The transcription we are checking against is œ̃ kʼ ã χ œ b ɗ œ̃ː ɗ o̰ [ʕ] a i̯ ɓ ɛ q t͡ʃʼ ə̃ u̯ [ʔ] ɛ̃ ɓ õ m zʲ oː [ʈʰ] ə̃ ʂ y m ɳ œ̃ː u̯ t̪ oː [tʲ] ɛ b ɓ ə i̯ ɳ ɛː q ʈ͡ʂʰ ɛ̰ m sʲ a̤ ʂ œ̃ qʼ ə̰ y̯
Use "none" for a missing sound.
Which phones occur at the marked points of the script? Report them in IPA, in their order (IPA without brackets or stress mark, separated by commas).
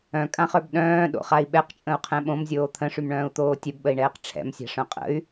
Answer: χ, qʰ, t̪ʰ, tʲ